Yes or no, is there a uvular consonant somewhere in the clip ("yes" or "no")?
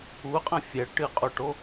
yes